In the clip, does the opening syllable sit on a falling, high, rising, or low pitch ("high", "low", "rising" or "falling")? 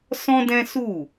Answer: high